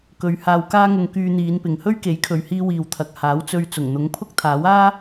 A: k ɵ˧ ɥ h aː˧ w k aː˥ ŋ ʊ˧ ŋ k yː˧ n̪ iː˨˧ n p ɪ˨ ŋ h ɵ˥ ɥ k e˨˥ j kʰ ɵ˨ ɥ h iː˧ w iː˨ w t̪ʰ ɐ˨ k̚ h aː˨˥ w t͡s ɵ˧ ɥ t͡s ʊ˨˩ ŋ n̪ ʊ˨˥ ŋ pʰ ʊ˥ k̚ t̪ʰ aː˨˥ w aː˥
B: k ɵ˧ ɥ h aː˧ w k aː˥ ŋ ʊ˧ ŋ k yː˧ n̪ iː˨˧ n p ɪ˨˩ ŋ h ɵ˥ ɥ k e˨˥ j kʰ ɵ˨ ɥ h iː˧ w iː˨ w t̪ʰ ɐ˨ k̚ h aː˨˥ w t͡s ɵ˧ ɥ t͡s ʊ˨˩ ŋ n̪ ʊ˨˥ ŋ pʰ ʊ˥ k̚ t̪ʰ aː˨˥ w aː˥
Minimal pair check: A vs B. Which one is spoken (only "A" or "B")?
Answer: A